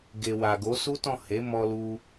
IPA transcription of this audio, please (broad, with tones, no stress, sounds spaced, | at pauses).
ɡ e˨ w a˨ ɡ o˨˦ s u˦ t ɔ̃˦˨ h e˨˦ m ɔ˧ l u˧